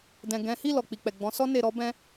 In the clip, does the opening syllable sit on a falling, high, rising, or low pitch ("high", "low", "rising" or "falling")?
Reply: low